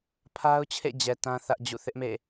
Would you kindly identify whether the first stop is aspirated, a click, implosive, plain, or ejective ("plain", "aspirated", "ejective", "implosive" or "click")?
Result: aspirated